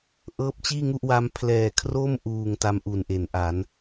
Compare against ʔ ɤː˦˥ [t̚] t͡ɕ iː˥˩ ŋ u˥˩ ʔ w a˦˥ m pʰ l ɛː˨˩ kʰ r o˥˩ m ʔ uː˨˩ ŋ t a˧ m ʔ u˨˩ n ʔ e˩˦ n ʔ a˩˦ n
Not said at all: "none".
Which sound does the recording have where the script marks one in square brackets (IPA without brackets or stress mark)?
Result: p̚